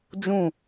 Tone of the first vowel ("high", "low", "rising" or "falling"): falling